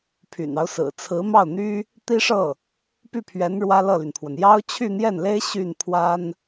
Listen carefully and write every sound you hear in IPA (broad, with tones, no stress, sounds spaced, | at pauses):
pʰ y̰˨˩ n ɑ˦ ʊ̯ s ɹ̩˨˩ t͡sʰ ɹ̩˧˥ m ɑ˥˩ ʊ̯ n̪ y˥ | t̪ i˥ ʂ ɤ˥˩ | p y˥˩ pʰ ɥ ɛ˧˥ n ɻ w ä˥ l ɤ˥˩ l y˩ n pʰ w ə˩ n j ɑ˥ ʊ̯ t͡ɕʰ y˥˧ n̪ j ɛ˥˩ n l e˥ ɪ̯ ɕ y˥˩ n pʰ w a˥ n